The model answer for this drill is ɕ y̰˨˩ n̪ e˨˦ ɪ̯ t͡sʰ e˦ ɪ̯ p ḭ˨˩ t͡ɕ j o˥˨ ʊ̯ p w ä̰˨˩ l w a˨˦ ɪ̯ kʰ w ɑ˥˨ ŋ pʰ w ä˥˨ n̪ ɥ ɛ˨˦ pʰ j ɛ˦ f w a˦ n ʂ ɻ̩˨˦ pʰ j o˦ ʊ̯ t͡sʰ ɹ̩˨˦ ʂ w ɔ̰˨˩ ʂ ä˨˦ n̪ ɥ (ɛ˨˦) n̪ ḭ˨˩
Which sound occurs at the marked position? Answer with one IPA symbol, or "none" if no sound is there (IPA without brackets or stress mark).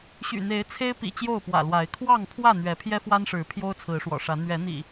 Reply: ɛ˨˦